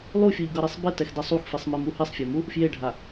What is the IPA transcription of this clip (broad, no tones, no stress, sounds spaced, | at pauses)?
lˠ u fʲ u ʎ ɡ ʌ ɾ i sˤ b e t ɛ x d ɛ sˤ u x f i sˤ m e m u h i sˤ fʲ a m u | f j e ɖʱ a